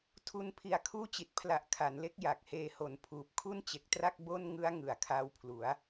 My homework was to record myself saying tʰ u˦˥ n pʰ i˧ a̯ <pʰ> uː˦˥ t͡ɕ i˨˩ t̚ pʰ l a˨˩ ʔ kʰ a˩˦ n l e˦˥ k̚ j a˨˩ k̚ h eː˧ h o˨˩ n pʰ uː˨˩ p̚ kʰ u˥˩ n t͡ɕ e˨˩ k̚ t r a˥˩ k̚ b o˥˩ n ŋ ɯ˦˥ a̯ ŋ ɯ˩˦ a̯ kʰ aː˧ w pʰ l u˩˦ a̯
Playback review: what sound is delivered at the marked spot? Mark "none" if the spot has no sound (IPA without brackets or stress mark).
kʰ